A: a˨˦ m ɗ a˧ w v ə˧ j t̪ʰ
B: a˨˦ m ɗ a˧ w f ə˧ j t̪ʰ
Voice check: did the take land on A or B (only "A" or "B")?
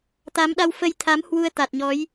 B